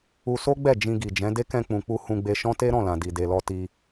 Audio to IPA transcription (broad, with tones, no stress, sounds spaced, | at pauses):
u˧ s o˦ ɡ͡b ɛ˦˨ d͡ʒ ĩ˧ ɡ i˨ d͡ʒ ɛ̃˨˦ d e˦ k ɛ̃˧ k͡p ũ˨ k͡p u˧ h ũ˧ ɡ͡b e˧ ʃ ɔ̃˦ t e˦ ɾ ɔ̃˦˨ l ã˨ d i˨ d e˨ l ɔ˧ t i˧